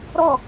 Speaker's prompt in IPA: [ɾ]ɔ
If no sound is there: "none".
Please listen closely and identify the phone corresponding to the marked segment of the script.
ɾ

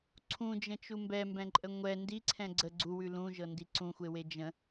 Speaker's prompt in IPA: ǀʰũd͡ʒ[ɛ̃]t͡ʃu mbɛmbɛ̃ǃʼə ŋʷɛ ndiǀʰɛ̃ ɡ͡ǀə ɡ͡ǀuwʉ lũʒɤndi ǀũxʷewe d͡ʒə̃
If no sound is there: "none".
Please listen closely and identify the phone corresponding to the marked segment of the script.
ə̃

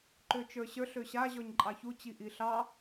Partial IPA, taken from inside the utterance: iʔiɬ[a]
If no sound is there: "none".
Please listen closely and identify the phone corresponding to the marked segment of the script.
ɑ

